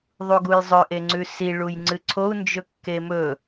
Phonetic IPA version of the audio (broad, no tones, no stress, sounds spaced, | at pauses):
ðˤ u ɡ u j zˤ ɵ ʔ e ŋ͡ǀ ʉ s i ɭ u j ŋ͡ǀ ɨ ǀʰ o u̯ n d͡ʒ ɵ kː e m ɵ